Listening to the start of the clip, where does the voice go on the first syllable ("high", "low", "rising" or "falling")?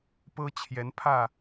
high